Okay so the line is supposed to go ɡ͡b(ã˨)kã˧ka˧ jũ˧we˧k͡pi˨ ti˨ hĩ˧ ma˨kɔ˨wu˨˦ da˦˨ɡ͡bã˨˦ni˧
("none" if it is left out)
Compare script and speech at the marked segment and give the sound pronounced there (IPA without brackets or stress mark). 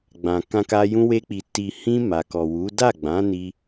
ã˨